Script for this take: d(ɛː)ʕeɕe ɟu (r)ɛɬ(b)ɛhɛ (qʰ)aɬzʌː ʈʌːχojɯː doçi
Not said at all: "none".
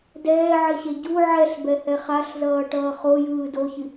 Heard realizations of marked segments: ɛː, ʕ, b, χ

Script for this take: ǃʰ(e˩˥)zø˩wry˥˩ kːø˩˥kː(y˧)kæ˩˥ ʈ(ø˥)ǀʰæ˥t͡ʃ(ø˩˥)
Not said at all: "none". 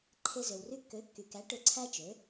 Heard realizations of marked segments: e˧, y˩, ø˧, ø˩˥

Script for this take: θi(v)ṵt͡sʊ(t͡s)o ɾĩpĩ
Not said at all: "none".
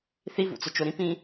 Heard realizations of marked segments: v, t͡ʃ

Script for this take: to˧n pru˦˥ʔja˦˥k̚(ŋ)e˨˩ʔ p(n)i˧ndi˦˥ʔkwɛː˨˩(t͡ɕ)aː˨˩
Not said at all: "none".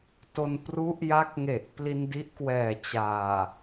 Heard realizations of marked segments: ŋ, l, t͡ɕ

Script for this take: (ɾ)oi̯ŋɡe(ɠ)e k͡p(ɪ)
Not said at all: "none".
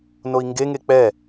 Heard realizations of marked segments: n, ŋ, ɛ

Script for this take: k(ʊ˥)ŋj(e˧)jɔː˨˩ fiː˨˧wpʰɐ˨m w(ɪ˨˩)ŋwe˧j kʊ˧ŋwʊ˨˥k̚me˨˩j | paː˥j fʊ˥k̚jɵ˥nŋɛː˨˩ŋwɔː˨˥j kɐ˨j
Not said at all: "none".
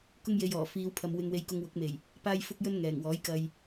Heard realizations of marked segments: ʊ˥, e˧, ɪ˧

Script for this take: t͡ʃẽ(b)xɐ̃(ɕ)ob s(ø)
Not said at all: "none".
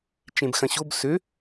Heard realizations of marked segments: b, ɕ, ø

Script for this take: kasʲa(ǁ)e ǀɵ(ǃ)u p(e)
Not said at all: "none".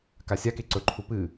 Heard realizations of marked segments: k, ǃʰ, ɨ

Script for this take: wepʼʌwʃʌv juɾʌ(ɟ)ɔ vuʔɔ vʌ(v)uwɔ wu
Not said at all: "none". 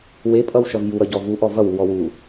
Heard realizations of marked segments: ɟ, w

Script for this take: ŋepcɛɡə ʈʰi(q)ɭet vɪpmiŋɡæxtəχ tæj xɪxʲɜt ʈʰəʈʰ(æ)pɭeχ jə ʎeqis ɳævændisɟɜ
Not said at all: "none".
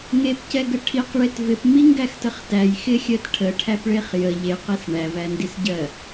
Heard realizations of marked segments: q, æ

